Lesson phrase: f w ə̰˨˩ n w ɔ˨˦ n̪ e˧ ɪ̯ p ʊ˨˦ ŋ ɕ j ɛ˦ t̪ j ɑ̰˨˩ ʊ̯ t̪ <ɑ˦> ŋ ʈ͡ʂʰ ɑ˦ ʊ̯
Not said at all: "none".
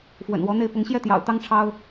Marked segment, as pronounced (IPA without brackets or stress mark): ɑ˦